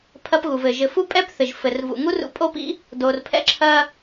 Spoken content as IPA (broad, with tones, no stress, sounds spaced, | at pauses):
pʰ ɐ˧ p ɣ u˨ v ɘ˨ ʒ ɘ˨ f u˦ pʼ ɛ˦ p θ ɘ˨ ʒ f ɘ˨ r v ṵ˨ ŋ u˦ r ṵ˧ pʼ o˦ p ḭ˦ | d o˨ r pʰ ɛ̰˦ ǁʰ ɐ˧